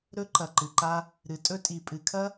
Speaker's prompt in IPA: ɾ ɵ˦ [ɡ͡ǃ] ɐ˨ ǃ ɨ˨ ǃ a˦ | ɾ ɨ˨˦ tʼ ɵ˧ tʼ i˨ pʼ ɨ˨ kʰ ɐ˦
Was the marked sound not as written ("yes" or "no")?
yes